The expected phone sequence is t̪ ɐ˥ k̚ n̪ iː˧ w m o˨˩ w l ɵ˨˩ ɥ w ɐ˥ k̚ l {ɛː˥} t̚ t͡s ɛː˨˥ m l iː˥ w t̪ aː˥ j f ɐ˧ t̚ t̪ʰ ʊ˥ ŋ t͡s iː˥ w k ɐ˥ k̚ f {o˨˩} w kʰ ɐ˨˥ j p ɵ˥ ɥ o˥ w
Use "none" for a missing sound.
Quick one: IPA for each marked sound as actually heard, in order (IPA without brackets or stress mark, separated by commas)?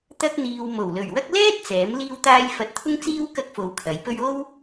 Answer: ɛː˥, o˧